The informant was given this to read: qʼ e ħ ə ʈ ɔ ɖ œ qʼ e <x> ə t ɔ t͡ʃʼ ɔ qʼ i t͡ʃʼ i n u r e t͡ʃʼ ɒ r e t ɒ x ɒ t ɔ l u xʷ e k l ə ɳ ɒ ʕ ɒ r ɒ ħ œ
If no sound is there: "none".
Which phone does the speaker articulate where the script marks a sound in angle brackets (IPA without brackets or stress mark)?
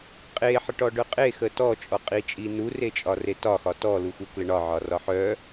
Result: x